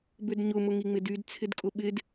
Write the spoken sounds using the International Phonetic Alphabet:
bʏdɲʊ mʊŋiŋ͡mɪdyd t͡sʰɪdkʼʊɓɪd

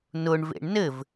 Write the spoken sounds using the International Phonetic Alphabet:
nʊɳvḛɳ nɘv

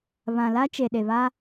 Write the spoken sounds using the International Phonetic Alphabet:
βã˨la˦ t͡ʃe˨ɗe˨βa˦

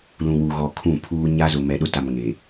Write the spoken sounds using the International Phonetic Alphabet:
lũ˨wu˨ɣɔ˨ kʰũ˦˨pʰuː˦ ɲa˦zʊ˨mɛ˨ɗʊ˦ ta˨m ŋe˨

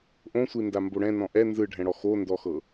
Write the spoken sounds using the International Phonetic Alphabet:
ʔõsʷindambo ɽɛ̃nɔ̃ ʔɛ nzɯɖʱɛ̃ɽɔ xondɔxɤ

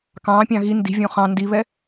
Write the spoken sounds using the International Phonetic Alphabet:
kɑ̃ːpʲɑ̃ ɣi ndi̤vʲõ χɑ̃ ndiβɛ

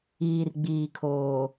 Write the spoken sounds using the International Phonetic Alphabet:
iː˨rɡ͡biː˨ kʰoː˨

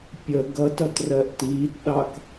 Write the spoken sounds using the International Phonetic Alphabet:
pʲə ɡʌtʌt rɜʔtiːtɗɑk

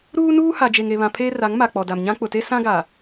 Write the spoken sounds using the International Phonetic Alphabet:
ɾuː˦nuː˦ha˨ d͡ʒe˨ŋe˨βã˨ pʰeː˦ra˨˦ŋma˨ k͡pɔ˨da˨mɲã˦ k͡pʊ˨te˦ sã˦ɡa˨

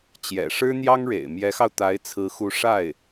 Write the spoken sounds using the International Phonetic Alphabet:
t͡ɕjɛ̰˨˩ʂɻ̩˥ n̪jɑ˥ŋɻḛ˨˩ɪ̯ mjɛ˧˥xɑ˧ʊ̯t̪a˧˥ɪ̯ t͡sʰɹ̩˧˥ xu˧˥ʂa˥˩ɪ̯

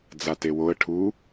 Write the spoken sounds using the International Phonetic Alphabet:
d͡zatewoə̯ ʈʰu

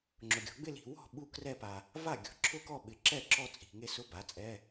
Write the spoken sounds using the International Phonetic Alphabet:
ŋ͡ǁʊ˨ɡʲɔ̤˩˥ ɡ͡bɪ˥˧li̤˨ wɔ̤˥˩ ɓu˥˧krɛ˥˧pa˨ | va˥˩ɡʲɔ̤˨ ǁʰʊ˥˧kɔ˥˩ ɓɪ˨ ǁɛ˥˩ ǁɔ˥˧t͡sʼi̤˨ŋe˥˧sʊ˦˥ ba˩˥t͡sʼɛ˧˥˧

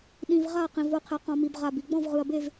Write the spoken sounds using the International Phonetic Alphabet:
ɗĩ˩v ʁa˥˩qĩ˩v o˥˩qʰe˩qɔ̃˩mi˩b ʁa˩bi˩ ɡ͡bɔ̃˥˩vʁɯ˩ɐ̯be˥˩v

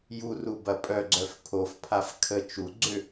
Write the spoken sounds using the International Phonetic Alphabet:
ju rubɐpʼœ ɡ͡ǀœfpʰof pʰafkʰə t͡ʃu ɡ͡ǀʏ

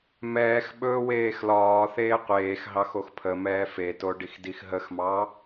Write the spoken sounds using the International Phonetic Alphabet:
mɛːx ɓɵːweːxlɒːθeː qʷeːxɦɑx oxpʰəmɛː feto ɖixdixɦəxmɑ

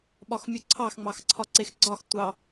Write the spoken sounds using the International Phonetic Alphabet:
ɓɒxmʲuǀʰɑx ŋ͡mɑxǀʰɒǀexɡ͡ǀɒx tʷɑ

